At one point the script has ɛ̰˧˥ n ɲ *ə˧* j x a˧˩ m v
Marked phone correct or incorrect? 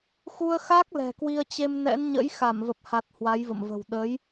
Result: incorrect